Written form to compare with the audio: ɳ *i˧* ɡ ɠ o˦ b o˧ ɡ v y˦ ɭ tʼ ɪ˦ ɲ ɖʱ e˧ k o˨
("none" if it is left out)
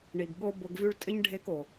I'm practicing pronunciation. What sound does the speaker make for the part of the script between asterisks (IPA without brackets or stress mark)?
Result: i˨